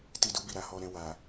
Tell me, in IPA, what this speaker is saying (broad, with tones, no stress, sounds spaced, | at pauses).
t i˧ d u˧ b i˨ ɾ a˧ h ɔ˧ ɾ ɛ̃˧ w a˨